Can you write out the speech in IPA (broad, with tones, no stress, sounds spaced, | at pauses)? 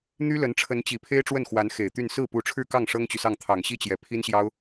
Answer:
n̪ y˥ l ə˧˥ n ʈ͡ʂʰ ə˧˥ n t͡ɕ i˨˩ pʰ e˥ ɪ̯ ʈ͡ʂ w ə˥˩ n x w a˧˥ n x e˨˩ ɪ̯ t̪ y˥˧ n s ɹ̩˥˩ p u˧˥ ʈ͡ʂʰ ɻ̩˥˧ k ɑ˥˩ ŋ ʂ ɤ˥ ŋ t͡ɕ y˨ s ɑ˥˩ ŋ t̪ʰ ɑ˨˩ ŋ ɕ i˥ t͡ɕ j ɛ˨˩ pʰ i˥ n ɕ j ɑ˥ ʊ̯